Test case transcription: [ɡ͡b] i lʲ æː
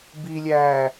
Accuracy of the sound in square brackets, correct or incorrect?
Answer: incorrect: b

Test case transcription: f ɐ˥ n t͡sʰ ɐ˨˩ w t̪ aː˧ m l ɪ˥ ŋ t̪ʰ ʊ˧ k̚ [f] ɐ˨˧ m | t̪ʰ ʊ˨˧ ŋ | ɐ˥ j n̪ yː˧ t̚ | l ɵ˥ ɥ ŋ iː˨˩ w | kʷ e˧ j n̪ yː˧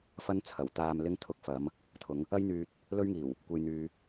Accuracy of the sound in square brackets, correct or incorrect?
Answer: correct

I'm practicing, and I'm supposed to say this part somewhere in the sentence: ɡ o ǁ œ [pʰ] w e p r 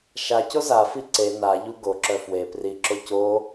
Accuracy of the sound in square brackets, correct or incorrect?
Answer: incorrect: f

